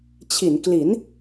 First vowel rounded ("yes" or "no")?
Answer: no